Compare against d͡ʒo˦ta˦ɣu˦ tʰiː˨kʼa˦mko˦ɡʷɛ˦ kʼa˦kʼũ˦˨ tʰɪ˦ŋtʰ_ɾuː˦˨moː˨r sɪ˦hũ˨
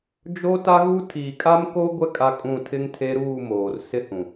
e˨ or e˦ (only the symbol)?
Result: e˦